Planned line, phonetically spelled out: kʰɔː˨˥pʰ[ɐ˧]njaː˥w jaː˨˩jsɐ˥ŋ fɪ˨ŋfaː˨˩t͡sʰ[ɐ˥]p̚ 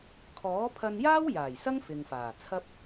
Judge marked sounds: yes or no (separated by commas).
yes, yes